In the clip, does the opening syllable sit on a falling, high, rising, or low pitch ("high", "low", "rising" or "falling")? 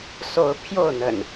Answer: rising